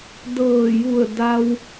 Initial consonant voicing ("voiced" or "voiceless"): voiced